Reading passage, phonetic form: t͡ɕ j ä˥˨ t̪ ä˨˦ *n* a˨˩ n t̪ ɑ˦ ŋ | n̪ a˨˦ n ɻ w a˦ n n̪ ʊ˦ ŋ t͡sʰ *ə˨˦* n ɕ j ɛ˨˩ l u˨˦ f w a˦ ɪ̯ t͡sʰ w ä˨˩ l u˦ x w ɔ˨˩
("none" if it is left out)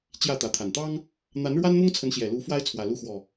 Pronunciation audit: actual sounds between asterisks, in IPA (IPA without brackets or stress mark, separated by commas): t̪ʰ, ə˨˦